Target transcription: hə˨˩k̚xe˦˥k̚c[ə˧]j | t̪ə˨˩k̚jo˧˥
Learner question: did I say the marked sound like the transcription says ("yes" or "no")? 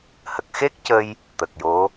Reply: yes